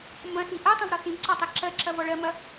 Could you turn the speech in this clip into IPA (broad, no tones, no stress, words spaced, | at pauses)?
mbɐ̃si ʔɜtˤɐ̃vɾɔ sĩbǀɔtˤi ǁɜǁɐvɔ ɭɜmɐ